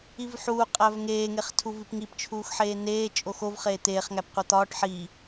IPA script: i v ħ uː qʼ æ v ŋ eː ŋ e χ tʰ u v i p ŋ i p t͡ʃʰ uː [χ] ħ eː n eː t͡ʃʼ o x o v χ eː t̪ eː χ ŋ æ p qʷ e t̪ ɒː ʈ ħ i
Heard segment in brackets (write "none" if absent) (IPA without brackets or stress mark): x